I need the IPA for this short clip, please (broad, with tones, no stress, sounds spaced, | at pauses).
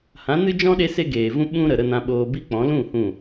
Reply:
h ã˨˦ n ɨ˦ d͡ʒ ɔ̃˦ ɗ e˦ s e˦ ɡ eː˨ v ũ˦ ɓ ũ˦ ɾ ə˨ ɾ ə˧ n ã˧ ɓ oː˧ b i˦ k͡p ɔ̃˨˦ l ũ˦˨ h ũ˦˨